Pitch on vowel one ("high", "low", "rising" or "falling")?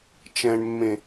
low